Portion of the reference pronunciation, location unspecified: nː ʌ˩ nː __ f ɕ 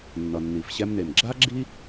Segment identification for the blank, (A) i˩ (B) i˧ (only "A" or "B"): A